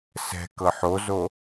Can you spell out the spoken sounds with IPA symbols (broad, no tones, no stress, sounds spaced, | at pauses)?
s ɛ̤ k ɤ ħ o z o